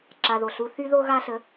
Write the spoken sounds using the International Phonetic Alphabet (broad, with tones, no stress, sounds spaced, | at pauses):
ǁ a˧ ð o˨ ɬ u˦ θ y˦ ð o˦ ɣ a˦ ɬ ə˨˦